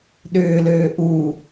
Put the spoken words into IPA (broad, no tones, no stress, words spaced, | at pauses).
ɗʏːløː ʔu